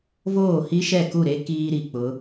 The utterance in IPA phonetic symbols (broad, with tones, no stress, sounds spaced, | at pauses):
v oː˦˨ h i˦ ʃ ɛ˦˨ k u˦˨ ɾ e˦ k iː˦ ɾ i˨ k͡p ʊ˨˦